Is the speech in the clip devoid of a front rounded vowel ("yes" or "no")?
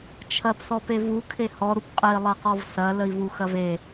yes